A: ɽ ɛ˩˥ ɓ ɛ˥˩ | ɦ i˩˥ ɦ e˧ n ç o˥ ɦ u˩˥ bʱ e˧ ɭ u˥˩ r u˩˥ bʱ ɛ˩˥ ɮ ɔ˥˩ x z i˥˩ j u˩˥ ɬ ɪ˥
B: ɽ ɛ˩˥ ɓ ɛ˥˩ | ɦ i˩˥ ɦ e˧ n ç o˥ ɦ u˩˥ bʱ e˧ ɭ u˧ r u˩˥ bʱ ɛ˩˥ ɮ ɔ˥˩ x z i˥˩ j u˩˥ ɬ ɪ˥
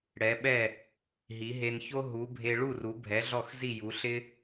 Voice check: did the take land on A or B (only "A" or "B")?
A